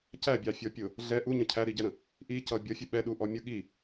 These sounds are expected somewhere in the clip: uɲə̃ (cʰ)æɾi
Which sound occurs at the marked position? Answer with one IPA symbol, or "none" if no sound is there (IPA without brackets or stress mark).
cʰ